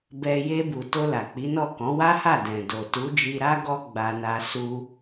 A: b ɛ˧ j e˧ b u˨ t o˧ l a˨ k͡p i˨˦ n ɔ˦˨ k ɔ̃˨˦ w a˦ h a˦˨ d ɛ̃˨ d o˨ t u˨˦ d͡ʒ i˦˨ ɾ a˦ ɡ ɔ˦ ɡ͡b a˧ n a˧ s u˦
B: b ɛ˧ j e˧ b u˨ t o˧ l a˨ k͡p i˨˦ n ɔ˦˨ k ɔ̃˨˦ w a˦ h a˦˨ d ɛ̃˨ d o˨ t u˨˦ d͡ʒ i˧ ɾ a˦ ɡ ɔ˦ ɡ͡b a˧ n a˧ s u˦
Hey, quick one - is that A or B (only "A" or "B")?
B